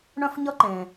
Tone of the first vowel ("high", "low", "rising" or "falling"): high